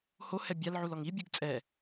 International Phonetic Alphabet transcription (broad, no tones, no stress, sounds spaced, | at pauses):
h o h ɛ bʲ a l ʕ u l ɔ ŋ i bʲ u ɡ t͡sʼ ɛ